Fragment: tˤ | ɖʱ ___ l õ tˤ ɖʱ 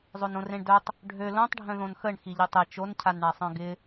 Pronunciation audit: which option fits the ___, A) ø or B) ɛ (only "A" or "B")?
A